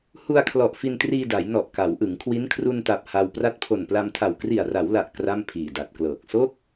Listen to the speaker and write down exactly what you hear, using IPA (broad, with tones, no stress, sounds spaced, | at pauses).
h u˧ a̯ kʰ l ɔ˨˩ ʔ f i˧ n t r iː˧ d a˩˦ j n ɔ˨˩ ʔ k a˩˦ w ʔ ɯ˩˦ ŋ kʰ w i˦˥ n kʰ r u˧ n t a˨˩ p̚ h a˧ w p r a˦˥ t̚ pʰ o˨˩ n p l a˧ m tʰ a˨˩ w k r i˨˩ a̯ r a˩˦ w l a˨˩ ʔ k r a˥˩ m pʰ iː˨˩ d a˨˩ t̚ k l ɤː˨˩ k̚ s o˥˩ k̚